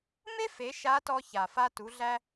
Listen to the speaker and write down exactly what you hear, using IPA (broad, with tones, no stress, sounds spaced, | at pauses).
m e˥ f e˩˧ ʃ a˧˥ t ɔ˧ ç a˩ f a˧ t u˩˧ ɮ æ˧